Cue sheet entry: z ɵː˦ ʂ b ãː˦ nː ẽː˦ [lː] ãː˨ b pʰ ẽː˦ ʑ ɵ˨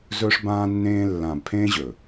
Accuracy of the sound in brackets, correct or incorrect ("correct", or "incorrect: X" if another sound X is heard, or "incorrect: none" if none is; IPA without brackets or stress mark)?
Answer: correct